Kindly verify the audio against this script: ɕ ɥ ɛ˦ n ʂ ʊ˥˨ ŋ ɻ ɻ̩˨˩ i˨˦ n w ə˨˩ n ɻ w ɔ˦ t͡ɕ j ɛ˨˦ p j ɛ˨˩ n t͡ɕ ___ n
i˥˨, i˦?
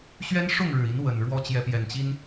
i˦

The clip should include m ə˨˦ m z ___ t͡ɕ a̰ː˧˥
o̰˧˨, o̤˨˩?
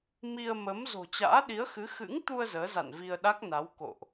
o̤˨˩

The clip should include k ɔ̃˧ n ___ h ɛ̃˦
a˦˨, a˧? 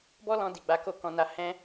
a˧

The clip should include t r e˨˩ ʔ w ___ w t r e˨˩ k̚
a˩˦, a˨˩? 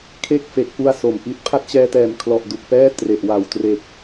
a˨˩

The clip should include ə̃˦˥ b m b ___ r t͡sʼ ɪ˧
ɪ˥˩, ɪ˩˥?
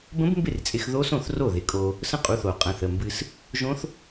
ɪ˥˩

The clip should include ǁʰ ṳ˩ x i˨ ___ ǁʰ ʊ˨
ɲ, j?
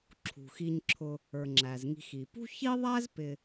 ɲ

